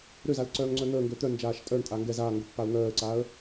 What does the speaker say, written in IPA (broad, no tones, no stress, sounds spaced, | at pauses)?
ɾ ø z a l ǀ œː ŋ ŋ͡ǀ œ n̪ əː ŋ ɡ ø t̪ œ n d͡ʒ aː ʃ tʼ œ ɳ tʼ a ŋ ɡ ɛ z aː ŋ ɡ ə pː a ʊ̯ ŋ œː ə̯ ǀ aː ə̯